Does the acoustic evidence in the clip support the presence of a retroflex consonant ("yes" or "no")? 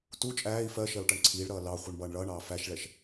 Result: yes